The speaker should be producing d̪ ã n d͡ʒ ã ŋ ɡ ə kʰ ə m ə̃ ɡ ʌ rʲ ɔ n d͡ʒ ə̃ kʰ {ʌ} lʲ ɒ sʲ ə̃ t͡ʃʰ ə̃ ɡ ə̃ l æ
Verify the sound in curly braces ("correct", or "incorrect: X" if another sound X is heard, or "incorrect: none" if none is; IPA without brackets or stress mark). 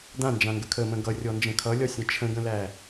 correct